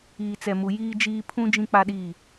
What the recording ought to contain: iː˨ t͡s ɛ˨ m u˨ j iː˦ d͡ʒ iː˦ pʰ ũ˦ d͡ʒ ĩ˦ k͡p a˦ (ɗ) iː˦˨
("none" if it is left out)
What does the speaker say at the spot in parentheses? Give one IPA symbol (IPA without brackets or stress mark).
ɗ